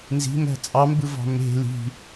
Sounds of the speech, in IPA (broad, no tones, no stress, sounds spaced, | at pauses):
n z i̤ m æ̤ t͡sʼ ɑ m b ɯ v ɑ̤ m e̤ l i̤